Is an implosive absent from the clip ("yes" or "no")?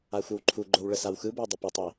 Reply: yes